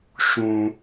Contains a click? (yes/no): no